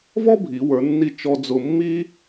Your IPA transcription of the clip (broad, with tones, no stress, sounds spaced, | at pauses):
v ɔ˥ bʱ i˩˧ w ə˞˩˧ nː i˧ t͡ʃ ɔ˧ d͡z ʊ˧ mː i˥